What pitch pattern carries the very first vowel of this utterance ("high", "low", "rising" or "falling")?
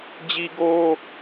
high